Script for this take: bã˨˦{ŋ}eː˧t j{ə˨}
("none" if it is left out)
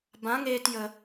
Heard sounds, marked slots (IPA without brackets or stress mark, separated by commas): ŋ, ə˨